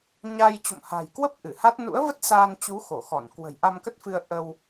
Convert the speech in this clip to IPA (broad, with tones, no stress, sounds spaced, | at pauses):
ɲ a˧ j t͡ɕ o̰˧˨ m h a̤˨˩ j k w ə˦˥ p̚ ʔ ɨ˧˩ h a˦˥ t̚ n ṵ˧˥ ə̯ v ə˦˥ t̚ s aː˧ n t͡ɕ u˨˦ x o˧˩ x ɔ˧˩ n k w ə̤˨˩ j ʔ a˧ m k ə˦˥ t̚ f ɨ˧ ə̯ ʔ ə˧ w